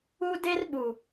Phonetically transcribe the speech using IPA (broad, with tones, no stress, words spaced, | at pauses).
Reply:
u˦ de˦rɓu˨